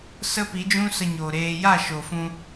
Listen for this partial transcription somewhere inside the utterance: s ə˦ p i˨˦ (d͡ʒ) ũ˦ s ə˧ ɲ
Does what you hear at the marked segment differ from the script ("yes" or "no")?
no